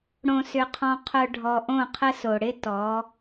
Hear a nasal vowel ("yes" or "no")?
yes